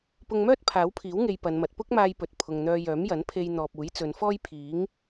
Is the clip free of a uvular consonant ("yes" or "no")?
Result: yes